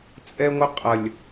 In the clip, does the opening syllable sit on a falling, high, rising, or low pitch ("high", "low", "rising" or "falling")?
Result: high